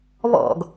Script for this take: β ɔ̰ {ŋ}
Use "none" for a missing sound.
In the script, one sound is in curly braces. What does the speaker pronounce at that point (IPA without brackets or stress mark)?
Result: ɡ